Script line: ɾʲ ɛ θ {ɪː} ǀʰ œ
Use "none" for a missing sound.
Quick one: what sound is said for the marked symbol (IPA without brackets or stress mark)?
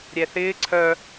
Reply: ɪː